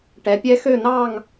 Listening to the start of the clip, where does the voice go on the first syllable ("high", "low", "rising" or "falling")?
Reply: rising